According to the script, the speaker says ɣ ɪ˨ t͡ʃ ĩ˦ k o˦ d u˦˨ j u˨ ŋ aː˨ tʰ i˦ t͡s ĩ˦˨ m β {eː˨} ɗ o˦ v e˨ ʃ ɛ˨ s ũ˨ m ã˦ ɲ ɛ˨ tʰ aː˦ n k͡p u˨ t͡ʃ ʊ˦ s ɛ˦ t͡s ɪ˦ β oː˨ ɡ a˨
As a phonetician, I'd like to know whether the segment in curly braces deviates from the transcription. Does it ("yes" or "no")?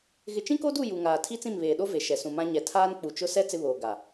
no